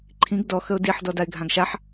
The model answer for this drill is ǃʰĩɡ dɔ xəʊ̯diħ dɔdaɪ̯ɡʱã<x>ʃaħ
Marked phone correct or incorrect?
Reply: incorrect